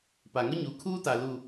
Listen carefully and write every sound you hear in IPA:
p a˨ ŋ ʊ˦ ɲ u˨˦ kʰ uː˦ t a˨ l u˨

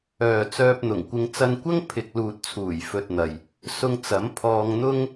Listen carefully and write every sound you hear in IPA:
œː˨ t͡s œː˧ p̚ n̪ ʊ˨˩ ŋ kʷ ɪ˧ ŋ t͡s ɐ˧ n kʷ ɐ˥ ŋ pʰ ɪ˨ k̚ l uː˨ t̚ t͡sʰ uː˨˩ j f ɵ˧ t̚ n̪ ɐ˨ j | s ʊ˧ ŋ t͡s ɐ˨˥ m pʰ ɔː˧ ŋ n̪ ʊ˥ ŋ

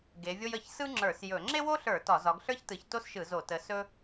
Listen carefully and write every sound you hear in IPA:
ɡ e˨˦ vʲ o˥ j ə˧˩˧ ç s ɯ˥ ŋ͡ǁ ə˞˧˩˧ s j ɵ˧˩˧ ŋ͡ǁ e˥ w o˥ ɬ ə˞˧˩˧ t ɒ˧˩˧ z ɒ˨˦ ɡ ɬ ə˞˥ ç t ɯ˨˦ ç t o˥ s ʃ ɯ˧˩˧ z o˧˩˧ t ə˨˦ s ɵ˥

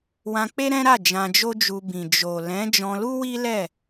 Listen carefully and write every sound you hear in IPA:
w ã˧ k͡p e˦ ɾ ɛ̃˦ ɾ a˦˨ d͡ʒ ã˧ d͡ʒ o˦ d͡ʒ u˧ b ĩ˨ d͡ʒ o˨ l ɛ̃˨˦ d͡ʒ ɔ̃˧ l u˦ w i˦ l ɛ˦˨

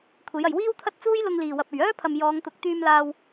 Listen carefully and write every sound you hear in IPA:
kʷʰ e˨˥ j ɐ˨ j w iː˥ w t̪ʰ ɐ˥ t̚ t͡s uː˥ j l ʊ˧ ŋ l iː˨˩ w ɐ˨ p̚ ɵ˨˩ ɥ œː˥ pʰ ɐ˨ m j ɔː˨˧ ŋ t̪ ʊ˨˥ k̚ t̪ yː˧ m l aː˧ w

